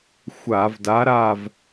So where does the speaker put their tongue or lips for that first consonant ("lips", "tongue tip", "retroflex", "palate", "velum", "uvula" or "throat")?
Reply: velum